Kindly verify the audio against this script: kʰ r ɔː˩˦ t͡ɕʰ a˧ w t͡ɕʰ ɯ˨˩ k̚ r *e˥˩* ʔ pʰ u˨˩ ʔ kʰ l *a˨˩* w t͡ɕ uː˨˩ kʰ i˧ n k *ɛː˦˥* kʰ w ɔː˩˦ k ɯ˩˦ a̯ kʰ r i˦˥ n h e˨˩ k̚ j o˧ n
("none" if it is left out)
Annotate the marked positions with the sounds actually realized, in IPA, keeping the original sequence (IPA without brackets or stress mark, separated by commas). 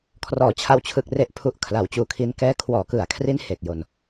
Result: e˨˩, a˩˦, ɛː˦˥